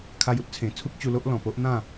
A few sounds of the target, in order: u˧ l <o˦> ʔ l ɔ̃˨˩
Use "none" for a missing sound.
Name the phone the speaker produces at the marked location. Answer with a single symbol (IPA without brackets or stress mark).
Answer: o˦